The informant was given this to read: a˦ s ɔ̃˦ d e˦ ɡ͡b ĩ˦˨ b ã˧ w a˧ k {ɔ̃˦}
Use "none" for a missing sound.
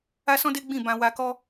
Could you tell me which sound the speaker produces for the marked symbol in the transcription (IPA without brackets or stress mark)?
ɔ˦